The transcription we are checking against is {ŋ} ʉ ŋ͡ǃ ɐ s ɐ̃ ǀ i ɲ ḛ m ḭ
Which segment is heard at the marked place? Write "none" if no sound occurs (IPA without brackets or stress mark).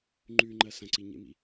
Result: ŋ͡ǃ